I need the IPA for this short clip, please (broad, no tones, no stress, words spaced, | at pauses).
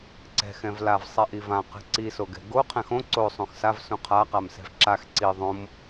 ǀɛ̤ xɛ̃vlav sˤɛʔivã qɛ̤ǀisoɡɛ̤ ɡo qʰɛ̃xõ ǀosˤũx sav sũqʰaqamsɛ̤v ǁax ǀi ðˤõm